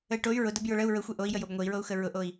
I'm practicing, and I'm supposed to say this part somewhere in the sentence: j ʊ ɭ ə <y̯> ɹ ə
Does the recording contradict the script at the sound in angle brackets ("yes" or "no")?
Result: yes